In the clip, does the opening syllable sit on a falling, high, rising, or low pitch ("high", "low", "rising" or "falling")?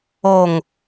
low